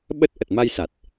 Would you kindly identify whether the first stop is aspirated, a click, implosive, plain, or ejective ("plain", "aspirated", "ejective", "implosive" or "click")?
implosive